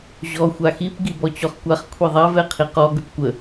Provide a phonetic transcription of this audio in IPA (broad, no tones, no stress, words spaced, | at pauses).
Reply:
ʑɔ xʷaxip ɡibɔt͡ɕɔχkʷaχ kʷʰiðˤav ɛqʰiqɔ ɡəpkʷə